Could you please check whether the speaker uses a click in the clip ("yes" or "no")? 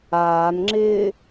yes